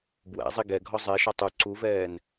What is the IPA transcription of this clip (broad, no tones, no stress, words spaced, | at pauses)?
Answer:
bwæ̰zˤi ɡɛ ɡʱɔzˤɛʃɒ tˤu ǀuvɛːn